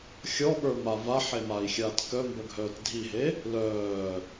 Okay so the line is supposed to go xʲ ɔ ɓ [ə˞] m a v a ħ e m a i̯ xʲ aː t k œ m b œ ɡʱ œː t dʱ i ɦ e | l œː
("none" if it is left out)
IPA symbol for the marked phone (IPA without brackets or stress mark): ə˞